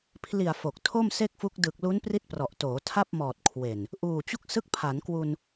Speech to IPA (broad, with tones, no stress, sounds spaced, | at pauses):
pʰ l i˨˩ a̯ f o˨˩ k̚ tʰ o˥˩ m s e˥˩ k̚ f u˦˥ k̚ d ɯ˨˩ k̚ l u˦˥ n p r i˦˥ t̚ p r ɔ˨˩ ʔ t oː˩˦ tʰ a˥˩ p̚ m ɔː˨˩ t̚ kʰ w e˨˩ n | ʔ uː˨˩ t͡ɕ u˦˥ k̚ s ɯ˦˥ k̚ pʰ a˩˦ n k w u˧ n